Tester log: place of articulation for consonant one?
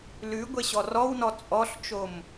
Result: alveolar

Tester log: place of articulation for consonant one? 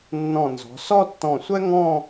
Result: alveolar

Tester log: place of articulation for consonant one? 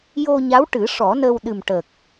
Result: palatal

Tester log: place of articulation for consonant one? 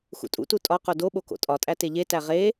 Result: velar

